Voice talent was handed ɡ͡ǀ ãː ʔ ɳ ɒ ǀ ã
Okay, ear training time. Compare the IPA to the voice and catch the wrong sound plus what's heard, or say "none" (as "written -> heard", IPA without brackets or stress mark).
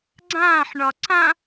ʔ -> ħ